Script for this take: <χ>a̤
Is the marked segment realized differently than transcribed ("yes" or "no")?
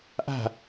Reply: yes